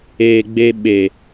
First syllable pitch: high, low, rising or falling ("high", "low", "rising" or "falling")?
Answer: low